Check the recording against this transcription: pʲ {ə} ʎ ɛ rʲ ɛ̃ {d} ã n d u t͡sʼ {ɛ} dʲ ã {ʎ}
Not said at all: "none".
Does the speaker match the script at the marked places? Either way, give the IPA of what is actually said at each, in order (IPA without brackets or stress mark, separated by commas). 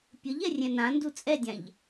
ə, n, ɛ, ʎ